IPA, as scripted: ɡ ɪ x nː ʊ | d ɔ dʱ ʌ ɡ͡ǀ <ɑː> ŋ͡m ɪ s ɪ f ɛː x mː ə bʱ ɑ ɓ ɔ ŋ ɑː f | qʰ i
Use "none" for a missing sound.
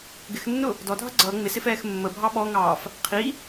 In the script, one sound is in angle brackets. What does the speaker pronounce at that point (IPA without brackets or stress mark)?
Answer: ʌː